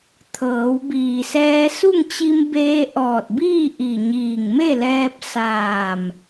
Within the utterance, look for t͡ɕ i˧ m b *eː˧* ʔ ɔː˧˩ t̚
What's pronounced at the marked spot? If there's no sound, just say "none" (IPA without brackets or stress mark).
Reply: eː˧